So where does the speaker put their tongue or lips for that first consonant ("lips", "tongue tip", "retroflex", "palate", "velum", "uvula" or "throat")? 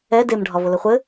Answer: tongue tip